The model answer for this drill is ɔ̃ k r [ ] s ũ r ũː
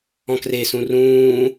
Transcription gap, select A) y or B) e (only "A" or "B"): B